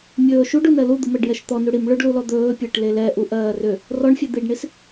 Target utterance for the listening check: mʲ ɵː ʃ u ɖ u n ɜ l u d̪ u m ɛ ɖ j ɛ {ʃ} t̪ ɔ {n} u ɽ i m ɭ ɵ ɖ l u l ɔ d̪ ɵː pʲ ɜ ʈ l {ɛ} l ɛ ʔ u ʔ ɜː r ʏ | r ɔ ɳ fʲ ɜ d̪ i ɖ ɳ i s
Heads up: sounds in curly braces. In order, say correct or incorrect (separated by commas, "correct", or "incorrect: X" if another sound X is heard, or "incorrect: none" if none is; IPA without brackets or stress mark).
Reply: correct, correct, incorrect: e